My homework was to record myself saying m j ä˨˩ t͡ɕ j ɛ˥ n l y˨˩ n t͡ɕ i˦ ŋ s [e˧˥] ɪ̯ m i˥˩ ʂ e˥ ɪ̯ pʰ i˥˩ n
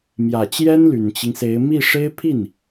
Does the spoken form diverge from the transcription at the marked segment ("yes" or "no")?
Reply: no